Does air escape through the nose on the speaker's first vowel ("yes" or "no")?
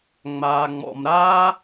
no